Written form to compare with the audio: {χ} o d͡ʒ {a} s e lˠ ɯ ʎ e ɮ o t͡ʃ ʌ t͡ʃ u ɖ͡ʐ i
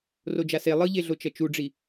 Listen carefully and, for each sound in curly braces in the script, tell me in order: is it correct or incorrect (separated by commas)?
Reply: incorrect, correct